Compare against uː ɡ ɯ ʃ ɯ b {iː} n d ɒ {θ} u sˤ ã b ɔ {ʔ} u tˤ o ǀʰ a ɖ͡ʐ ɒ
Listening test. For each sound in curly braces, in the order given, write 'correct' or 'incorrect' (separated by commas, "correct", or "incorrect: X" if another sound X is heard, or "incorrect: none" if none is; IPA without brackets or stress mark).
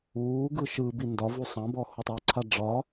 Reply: incorrect: i, incorrect: v, incorrect: h